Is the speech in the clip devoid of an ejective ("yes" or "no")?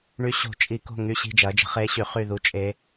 no